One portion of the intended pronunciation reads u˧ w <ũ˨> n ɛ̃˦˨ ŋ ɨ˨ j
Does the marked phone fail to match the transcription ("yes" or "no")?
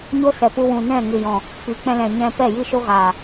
no